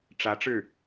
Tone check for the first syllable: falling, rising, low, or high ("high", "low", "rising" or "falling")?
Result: rising